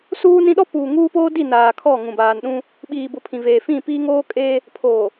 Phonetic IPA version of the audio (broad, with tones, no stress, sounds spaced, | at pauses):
s uː˦ n ĩ˦ ɗ ɔ˦ p uː˨ ŋ uː˦ p oː˦ d i˦˨ n aː˨ kʰ ɔ˦˨ ŋ ũ˨ b aː˨ n ɗ ũ˦ | ɓ iː˨ b ʊ˨ pʰ ĩ˨ v eː˨ f ĩ˦˨ p iː˦ ŋ oː˦ kʼ eː˦ | pʰ oː˨